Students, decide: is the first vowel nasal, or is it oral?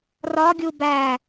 oral